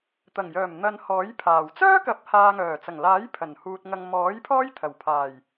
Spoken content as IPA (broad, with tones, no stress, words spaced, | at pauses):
t̪ɐ˨˩ŋjœː˨˩m n̪ɐ˨n hɔː˨˥jpʰaː˨˩w t͡sœː˥kɐ˨˥p̚ haː˨ŋœː˨˩t͡sɐ˨˩ŋlaː˨˥j pʰɐ˨˩nhuː˨t̚ ŋɐ˨ŋmɔː˨˥j pʰɔː˥jt̪ʰɐ˨˩w pʰaː˨˩j